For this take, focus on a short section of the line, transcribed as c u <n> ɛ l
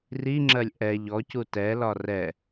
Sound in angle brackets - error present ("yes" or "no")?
yes